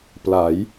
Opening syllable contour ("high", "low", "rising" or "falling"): rising